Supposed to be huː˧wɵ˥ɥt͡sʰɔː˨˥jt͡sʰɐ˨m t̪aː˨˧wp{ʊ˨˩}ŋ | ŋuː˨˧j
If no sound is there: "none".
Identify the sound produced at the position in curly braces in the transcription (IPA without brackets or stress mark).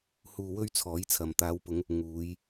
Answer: ʊ˨˧